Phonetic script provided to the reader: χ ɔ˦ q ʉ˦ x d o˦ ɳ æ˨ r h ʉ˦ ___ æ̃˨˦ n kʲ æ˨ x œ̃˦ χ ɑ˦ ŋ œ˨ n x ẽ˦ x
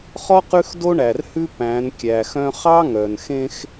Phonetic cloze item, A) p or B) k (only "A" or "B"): A